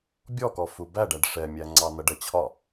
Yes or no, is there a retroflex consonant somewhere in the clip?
yes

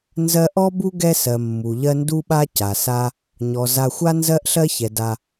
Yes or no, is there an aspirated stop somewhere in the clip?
no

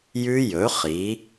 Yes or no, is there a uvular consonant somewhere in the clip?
yes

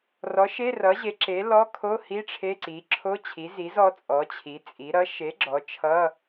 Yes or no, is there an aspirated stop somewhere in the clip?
yes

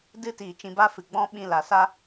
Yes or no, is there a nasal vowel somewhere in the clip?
yes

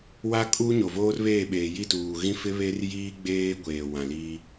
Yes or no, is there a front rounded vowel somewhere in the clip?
no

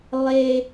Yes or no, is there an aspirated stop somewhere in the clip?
no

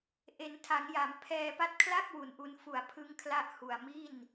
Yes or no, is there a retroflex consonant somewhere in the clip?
no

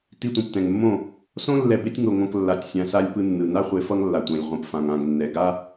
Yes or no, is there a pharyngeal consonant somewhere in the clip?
no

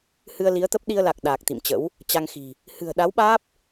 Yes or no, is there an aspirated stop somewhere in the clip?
no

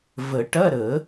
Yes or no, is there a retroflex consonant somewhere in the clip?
yes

